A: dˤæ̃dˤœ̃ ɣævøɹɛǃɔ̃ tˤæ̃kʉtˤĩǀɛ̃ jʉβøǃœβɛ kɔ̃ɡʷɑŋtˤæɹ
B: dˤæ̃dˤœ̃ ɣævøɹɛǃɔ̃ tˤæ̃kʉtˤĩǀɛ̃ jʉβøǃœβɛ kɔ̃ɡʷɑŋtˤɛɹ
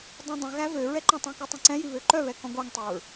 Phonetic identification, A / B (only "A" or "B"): B